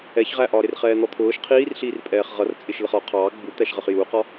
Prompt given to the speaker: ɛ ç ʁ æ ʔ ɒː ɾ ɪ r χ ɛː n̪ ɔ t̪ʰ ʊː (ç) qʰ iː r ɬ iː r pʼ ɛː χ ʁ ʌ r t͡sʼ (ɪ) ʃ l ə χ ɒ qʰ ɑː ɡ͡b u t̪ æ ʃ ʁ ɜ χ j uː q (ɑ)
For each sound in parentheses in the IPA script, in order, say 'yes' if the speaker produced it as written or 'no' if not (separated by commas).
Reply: no, yes, no